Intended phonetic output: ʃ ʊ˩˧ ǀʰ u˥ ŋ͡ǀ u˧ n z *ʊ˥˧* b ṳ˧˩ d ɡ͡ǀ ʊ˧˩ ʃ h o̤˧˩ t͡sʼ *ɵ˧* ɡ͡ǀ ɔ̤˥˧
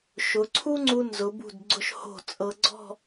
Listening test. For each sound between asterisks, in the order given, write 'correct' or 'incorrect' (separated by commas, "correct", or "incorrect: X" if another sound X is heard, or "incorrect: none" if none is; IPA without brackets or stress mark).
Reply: incorrect: ʊ˩˧, incorrect: ɤ˧